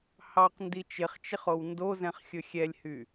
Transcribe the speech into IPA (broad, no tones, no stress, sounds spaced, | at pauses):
h ɑ q n d i t͡ʃ ɪ χ t͡ʃ ɪ χ o w n d o z ɛ̃ χ xʲ ɵ xʲ ɛ lʲ h y